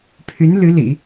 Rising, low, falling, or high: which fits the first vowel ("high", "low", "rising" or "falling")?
rising